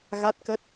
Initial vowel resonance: oral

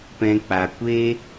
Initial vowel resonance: nasal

